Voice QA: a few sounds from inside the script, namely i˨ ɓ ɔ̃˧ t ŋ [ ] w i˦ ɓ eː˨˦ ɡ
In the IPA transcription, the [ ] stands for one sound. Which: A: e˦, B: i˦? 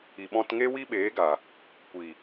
A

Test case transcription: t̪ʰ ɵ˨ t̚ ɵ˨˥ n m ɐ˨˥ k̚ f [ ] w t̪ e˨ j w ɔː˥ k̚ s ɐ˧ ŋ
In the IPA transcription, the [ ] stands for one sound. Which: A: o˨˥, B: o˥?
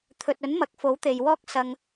A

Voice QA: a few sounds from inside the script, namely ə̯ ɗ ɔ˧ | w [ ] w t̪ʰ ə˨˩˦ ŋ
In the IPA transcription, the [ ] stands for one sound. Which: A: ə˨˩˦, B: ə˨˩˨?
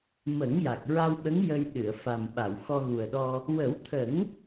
A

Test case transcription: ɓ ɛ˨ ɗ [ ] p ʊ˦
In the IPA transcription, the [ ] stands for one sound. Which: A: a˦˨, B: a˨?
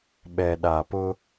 B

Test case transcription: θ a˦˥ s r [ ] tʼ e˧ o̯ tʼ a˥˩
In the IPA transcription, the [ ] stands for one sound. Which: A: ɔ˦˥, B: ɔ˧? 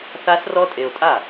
A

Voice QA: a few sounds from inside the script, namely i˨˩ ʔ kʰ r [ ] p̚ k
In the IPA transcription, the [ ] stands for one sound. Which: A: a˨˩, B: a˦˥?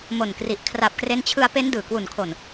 A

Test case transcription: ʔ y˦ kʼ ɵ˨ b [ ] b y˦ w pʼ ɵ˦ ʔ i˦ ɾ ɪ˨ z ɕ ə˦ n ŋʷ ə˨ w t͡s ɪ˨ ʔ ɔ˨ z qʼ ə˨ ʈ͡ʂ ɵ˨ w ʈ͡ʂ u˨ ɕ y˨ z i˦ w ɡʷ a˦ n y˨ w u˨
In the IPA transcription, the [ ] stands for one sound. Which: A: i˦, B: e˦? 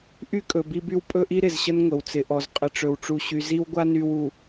A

